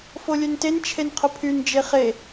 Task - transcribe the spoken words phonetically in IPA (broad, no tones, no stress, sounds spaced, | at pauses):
f o lʲ ø n t e n t͡ʃʰ e n qʰ ʊ pʰ y n d͡ʒ e χ e